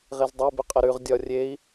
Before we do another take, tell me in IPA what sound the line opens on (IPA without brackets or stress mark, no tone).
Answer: ʁ